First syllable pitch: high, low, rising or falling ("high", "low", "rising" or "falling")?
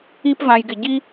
high